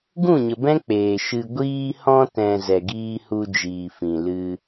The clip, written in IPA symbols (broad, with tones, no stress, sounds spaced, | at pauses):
ɡ ũ˦˨ ɲ ə˨ b ɛ̃˦ k͡p eː˨ ʃ ɨ˨ ɡʷ iː˧ h ɔ̃˧ t ɛ̃˨ z ɛ˨ ɡ iː˧ h u˧ d͡ʒ iː˨ f ĩ˨ l ɨ˧